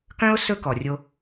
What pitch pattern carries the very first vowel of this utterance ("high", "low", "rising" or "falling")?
high